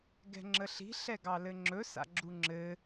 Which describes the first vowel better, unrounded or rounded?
unrounded